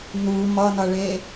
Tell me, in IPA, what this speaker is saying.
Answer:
n u m ʌ n ʌ ɭ e

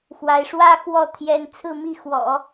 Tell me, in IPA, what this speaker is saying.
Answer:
x w a˧˥ ɪ̯ ʂ w ä˥ x w ɔ˥˩ t̪ʰ j ɛ˥ n t͡sʰ ɹ̩˥˧ m i˥˩ x w ɔ̰˨˩˦

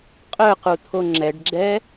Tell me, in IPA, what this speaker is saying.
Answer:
qʼ œ q u t̪ʰ o ŋ͡ǁ ɛ ɖ ɡ͡ǁ ɛ

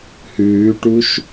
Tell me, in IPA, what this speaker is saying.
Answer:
h ʉː ʈ u ʃ

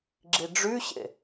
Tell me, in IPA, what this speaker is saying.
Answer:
ɡ͡ǁ i ɖ͡ʐ y ɕ ḛ

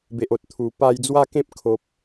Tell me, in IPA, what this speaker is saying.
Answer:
b e˨ ʔ o˨ t̚ t̪ʰ u˨˩ p a˧ j d͡z w a˦ k ẽ˦ p̚ kʰ o˦ p̚

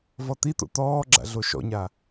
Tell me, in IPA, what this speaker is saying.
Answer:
v ɔ t̪ i t̪ o̰ t̪ ɔː ɡ͡ǁ a̰ ɮ o ʃ ɔ̰ ɲ a

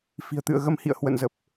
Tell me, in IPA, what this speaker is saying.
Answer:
f i̤˨˩ ə̯ t̪ ɨ̰˧˨ ə̯ ɣ ə˧ m h ḭ˧˨ ə̯ h w ə̰˧˨ n z ə˨˩ p̚

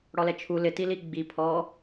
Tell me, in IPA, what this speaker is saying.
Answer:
ɽ ɔ l ɛ t͡ʃʰ u l ɪ t i l i ɡ͡b i pʰ ɔ

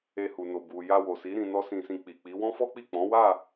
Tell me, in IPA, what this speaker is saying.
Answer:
e˧ h u˨ n o˨ b u˨ j a˧ w o˨ s i˨˦ ɾ ĩ˧ n ɔ˦ s ĩ˧ s ĩ˧ k͡p i˨ k͡p i˨˦ w ɔ̃˦ f ɔ˦ k͡p i˦˨ k͡p ɔ̃˨˦ w a˦˨

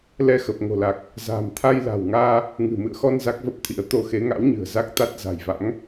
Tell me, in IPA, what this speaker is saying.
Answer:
l ɛ˧ x ə˨˩ p̚ ŋ o̤˨˩ l a˨˩ k̚ | z a̤ː˨˩ m t̪ʰ a˧ j l a̤˨˩ w ŋ aː˧ | ŋ ɨ̤˨˩ m ɨ̰˧˨ ə̯ x ɔ˧ n z a˦˥ k̚ v ə˦˥ p̚ t̪ʰ ḭ˧˥ ə̯ t̪ o˧ x e˨˦ ŋ a̰˧˥ w ɲ ɨ̤˨˩ ə̯ z a˦˥ k̚ t̪ a˦˥ t̚ z a̤˨˩ j v a̰˧˥ ŋ

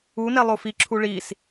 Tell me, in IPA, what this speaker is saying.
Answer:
u n ɛ lˠ o f i ǁʰ u ɭ i s

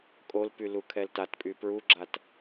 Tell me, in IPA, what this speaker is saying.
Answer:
kʼ o l p y l u kʰ ɛ l t a t pʼ y p ɹ u ɡ͡ǁ a t

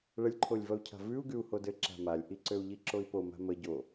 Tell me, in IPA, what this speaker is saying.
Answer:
ɭ ə lʲ ǃʰ o lʲ v ʌ u̯ cʰ a̤ v ʉ u̯ ɡ ʉ u̯ h o d ɘ ǁ a̤ m a lʲ ʔ i ǀ ø u̯ ʎ i ǁ o i̯ p o m a̤ m ə ɟ o

